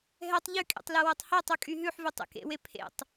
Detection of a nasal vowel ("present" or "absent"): absent